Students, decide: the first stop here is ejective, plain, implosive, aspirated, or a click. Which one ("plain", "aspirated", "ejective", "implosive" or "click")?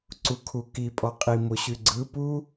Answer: click